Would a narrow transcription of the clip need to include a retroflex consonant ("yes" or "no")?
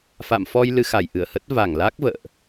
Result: no